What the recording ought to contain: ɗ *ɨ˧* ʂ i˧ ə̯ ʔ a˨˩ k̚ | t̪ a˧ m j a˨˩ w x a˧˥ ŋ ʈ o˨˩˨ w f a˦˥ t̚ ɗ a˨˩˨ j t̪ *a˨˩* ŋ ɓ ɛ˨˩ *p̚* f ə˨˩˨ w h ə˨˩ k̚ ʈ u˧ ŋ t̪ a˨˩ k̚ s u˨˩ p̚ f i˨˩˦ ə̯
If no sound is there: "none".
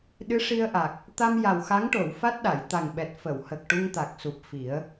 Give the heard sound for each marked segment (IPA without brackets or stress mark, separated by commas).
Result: ɨ˧˥, a˨˩, t̚